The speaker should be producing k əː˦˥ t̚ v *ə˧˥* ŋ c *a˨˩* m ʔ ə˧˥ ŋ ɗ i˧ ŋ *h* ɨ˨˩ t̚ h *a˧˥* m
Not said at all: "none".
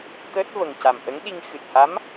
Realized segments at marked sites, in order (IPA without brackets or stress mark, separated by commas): ə˨˩, a˨˩, x, a˧˥